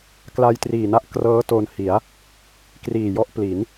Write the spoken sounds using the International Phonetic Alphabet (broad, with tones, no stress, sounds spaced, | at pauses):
k l a˧ j t r iː˨˩ n a˦˥ ʔ k r ɤː˦˥ t o˧ n h i˩˦ a̯ | k r iː˨˩ j ɔ˦˥ ʔ p l i˩˦ n